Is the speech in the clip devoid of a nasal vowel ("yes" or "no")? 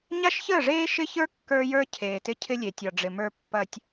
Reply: yes